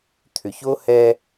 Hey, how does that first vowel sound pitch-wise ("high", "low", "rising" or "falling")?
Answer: low